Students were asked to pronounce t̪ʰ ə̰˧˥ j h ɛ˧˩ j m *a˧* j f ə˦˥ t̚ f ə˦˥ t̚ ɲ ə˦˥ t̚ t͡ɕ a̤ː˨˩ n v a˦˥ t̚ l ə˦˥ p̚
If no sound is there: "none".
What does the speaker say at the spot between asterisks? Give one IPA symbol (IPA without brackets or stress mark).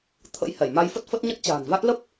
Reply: a˧